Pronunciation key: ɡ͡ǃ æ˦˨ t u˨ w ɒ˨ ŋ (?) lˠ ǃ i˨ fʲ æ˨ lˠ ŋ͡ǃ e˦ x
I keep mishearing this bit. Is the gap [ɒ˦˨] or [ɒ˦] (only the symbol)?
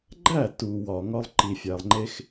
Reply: ɒ˦